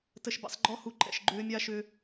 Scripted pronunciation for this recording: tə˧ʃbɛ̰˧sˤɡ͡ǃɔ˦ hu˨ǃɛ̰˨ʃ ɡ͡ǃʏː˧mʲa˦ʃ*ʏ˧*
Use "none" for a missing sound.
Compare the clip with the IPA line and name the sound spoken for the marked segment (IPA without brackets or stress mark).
ʏ˧